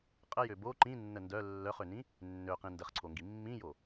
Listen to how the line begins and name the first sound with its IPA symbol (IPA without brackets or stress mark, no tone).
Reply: qʼ